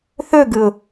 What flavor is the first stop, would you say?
plain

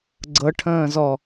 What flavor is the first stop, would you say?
click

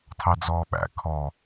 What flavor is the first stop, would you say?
aspirated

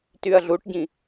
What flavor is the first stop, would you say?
plain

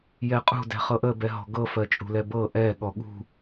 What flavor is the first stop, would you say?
ejective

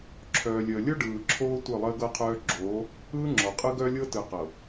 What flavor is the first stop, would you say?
click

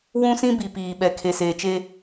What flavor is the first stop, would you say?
plain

